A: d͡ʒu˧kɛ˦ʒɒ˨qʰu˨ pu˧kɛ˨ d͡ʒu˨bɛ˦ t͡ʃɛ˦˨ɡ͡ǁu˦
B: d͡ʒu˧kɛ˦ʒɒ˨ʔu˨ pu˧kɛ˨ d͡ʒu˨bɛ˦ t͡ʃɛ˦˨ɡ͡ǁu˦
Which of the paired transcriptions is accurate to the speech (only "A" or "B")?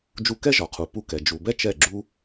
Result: A